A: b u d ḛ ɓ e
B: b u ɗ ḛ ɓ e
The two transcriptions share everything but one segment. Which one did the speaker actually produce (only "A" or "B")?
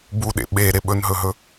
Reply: B